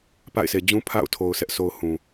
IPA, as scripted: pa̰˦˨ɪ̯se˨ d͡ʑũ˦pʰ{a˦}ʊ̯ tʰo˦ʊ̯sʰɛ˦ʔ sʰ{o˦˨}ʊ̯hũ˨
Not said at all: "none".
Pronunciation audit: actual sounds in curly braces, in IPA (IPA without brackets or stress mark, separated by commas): a̰˦˨, o˦